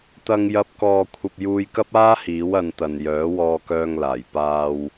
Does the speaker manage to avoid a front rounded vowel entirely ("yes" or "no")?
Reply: no